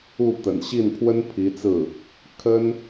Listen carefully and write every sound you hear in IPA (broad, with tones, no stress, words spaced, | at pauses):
u˥˩ t̪ə̰˨˩nɕi˥˩npʰwə˥n pʰi˧˥t͡sɹ̩˥˩ | kʰə˥n